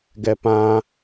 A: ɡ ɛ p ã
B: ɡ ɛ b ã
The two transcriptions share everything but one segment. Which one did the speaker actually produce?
A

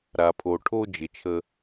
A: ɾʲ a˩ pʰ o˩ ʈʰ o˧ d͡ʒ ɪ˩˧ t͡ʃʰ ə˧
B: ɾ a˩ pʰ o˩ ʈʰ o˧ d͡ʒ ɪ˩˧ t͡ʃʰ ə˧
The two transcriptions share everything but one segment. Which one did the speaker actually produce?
B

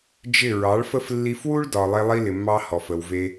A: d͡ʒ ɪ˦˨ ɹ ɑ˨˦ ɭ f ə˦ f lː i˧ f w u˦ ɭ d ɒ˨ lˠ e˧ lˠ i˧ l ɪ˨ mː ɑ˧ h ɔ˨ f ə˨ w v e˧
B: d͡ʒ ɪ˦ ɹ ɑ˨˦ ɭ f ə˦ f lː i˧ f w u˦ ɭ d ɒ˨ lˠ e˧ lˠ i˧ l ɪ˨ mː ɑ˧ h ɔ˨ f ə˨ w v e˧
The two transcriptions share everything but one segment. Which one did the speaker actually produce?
A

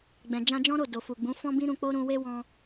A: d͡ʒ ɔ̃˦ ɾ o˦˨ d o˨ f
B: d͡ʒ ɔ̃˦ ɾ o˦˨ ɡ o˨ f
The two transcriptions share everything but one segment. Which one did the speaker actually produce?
A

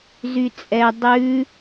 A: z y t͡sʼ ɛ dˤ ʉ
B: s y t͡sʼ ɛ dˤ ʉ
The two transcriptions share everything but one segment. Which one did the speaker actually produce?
A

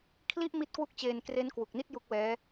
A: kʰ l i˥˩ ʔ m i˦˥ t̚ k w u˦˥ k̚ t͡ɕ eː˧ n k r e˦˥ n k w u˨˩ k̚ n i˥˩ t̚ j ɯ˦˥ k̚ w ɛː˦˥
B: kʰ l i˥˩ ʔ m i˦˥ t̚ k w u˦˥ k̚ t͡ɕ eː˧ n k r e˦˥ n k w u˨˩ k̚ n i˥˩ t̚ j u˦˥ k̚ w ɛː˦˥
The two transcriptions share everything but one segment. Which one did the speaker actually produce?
B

